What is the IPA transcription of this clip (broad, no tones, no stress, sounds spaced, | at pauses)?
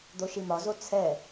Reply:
d̪ o ʃ i m ɒ z o t͡sʰ ɛ